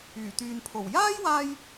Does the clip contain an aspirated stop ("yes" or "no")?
yes